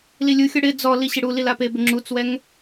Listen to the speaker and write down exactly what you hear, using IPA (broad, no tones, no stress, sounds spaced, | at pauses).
l i lʲ u xʲ ɔ ɽ ɪ d͡z ɔ l i ɕ ɪ ɽ u l i l a p e b ɪ ŋ͡ǁ u t͡s w ɛ ŋ